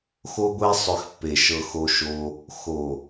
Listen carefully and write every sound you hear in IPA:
x o˧ ɡʷ e˧ sˤ ʏ˨ x pː e˨ ʃ ɤ˧ x o˧ ʃ o˧ | x o˨

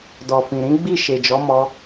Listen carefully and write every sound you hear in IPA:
d ɔ˨ f ĩ˨ ɾ ĩ˨˦ ɡ͡b i˦˨ ʃ e˨ d͡ʒ ɔ˨˦ m ɔ˧

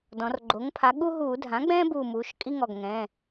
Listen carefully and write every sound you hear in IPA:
d ɔ̃˩˧ r ɡ͡ǃ o˩˥ ŋ pʰ a˩˥ ɠ u˦ ɦ uː˧˩˧ dʱ ã˩˥ ɡ͡b ɛ̃ː˦ b uː˧˩ m uː˩˧ ʃ kʼ i˦ ŋ ɔ˩˧˩ ɡ ŋ ɛ̃ː˩˧˩

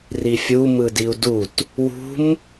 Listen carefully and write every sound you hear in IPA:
r i fʲ u m ɯ d i u̯ d u t | w ṳ m

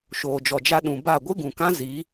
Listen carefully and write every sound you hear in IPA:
ʃ oː˨ d͡ʒ ɔ˨ d͡ʒ a˧ ɗ ũ˨ b a˦˨ ɡʷ ɨ˦ ɡ ũ˨ k ã˦ z i˨˦

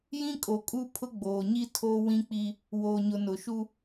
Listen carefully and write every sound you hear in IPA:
j ĩ˦ kʼ o˨ kʼ u˦ pʰ ʊ˦ ɡ͡b oː˨ ɲ i˦ tʰ o˦ w ĩ˦ k͡p i˦ | w oː˨ ɲ ʊ˨ n ʊ˨ ʃ u˦

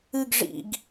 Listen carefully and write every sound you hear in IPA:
ɨ ɡ ʐ ḭ ɡ

